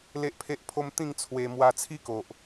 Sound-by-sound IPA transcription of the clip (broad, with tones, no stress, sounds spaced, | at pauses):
l e˦ ʔ pʰ e˦ ʔ pʰ o˦ m t̪ ĩ˥˧ ŋ t͡sʰ w e˧ m w a˧ t͡sʰ i˦ k o˨ ʔ